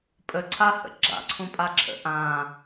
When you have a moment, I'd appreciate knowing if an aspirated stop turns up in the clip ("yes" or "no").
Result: yes